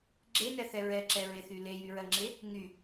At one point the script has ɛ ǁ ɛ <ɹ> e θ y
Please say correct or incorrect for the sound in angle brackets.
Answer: correct